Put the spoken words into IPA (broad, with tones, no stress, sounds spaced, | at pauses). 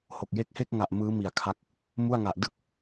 h o˨˩ k̚ j e˥˩ k̚ h e˥˩ k̚ ŋ a˨˩ ʔ m ɯː˦˥ m i˨˩ a̯ kʰ a˦˥ k̚ | m u˥˩ a̯ ŋ a˨˩ ʔ d ɯ˦˥ k̚